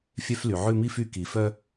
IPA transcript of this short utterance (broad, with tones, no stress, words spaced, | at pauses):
fʲœ˦fly˨ ʕʉ˦˨mi˦fy˦˨ ki˨fœ˦